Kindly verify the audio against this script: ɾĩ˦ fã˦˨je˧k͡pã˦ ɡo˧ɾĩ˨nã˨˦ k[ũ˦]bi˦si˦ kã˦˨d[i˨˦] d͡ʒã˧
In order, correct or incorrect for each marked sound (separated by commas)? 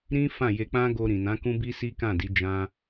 correct, correct